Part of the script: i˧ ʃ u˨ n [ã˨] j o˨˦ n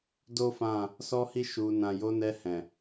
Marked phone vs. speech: correct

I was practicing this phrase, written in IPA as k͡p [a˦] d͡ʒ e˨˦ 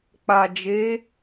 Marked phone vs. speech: incorrect: a˨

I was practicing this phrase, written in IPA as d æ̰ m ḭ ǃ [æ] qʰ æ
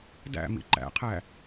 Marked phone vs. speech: incorrect: æ̰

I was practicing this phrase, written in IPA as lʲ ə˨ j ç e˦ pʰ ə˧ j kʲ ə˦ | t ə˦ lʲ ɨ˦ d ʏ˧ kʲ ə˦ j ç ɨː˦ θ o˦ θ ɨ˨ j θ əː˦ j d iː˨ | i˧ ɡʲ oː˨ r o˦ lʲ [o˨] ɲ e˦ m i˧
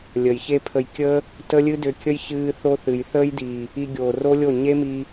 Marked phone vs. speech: incorrect: o˦˨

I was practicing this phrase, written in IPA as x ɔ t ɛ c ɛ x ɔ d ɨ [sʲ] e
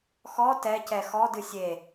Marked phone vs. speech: correct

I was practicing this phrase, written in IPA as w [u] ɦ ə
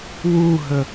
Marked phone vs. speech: correct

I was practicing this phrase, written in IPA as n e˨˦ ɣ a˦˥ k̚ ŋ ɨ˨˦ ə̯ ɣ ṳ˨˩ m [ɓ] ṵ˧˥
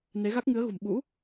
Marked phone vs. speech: correct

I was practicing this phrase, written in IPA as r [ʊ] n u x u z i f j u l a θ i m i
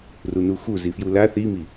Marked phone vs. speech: incorrect: u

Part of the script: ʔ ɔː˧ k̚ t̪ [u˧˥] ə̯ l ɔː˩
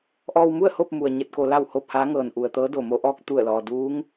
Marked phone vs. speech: incorrect: u˧˩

